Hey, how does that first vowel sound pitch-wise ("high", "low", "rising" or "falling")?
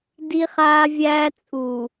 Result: high